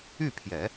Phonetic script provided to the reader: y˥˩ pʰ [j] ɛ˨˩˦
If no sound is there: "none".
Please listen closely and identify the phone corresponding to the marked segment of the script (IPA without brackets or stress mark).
j